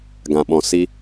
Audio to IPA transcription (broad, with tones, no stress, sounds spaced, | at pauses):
ɡ ã˨ ɓ ɔ̃˨ s i˧